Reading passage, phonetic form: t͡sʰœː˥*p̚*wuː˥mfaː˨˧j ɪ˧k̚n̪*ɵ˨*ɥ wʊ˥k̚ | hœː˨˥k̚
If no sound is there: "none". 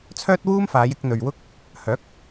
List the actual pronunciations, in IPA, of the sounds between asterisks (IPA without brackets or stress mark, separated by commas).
t̚, ɵ˨